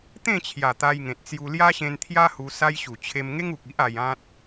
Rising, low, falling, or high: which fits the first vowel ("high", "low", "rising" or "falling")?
falling